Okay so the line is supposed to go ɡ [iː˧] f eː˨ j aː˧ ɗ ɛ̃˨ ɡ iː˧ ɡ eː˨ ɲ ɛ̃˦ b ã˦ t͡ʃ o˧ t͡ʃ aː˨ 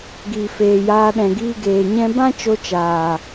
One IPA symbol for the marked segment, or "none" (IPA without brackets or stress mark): iː˨